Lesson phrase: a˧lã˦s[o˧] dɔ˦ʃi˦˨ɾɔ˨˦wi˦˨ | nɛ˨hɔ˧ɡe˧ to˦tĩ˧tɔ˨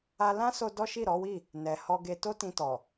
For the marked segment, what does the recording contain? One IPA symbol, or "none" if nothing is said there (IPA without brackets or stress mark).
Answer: o˧